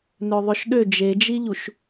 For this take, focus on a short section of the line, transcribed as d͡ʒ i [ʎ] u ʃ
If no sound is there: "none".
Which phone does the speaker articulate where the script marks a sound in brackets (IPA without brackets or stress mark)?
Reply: ʎ